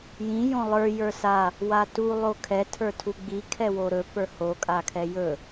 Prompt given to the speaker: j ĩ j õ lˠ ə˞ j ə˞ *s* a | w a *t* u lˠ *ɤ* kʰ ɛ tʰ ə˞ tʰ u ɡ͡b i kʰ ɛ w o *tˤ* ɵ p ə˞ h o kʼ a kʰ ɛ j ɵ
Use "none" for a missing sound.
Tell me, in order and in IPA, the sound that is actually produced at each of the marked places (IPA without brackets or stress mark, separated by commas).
s, t, o, ɾ